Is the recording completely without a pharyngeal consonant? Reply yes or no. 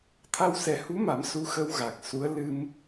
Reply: yes